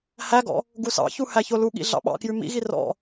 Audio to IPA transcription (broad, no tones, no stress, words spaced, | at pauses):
hæɡɔ̰ | ɡusɑ̰çu hæçoluɠḭ ɮɑ̰ɓɑ̰kjʉ mḭɣi rɔ̰